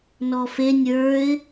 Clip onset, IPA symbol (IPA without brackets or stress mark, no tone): n